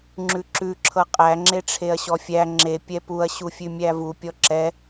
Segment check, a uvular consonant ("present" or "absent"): present